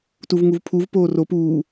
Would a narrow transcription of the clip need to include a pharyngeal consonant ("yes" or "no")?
no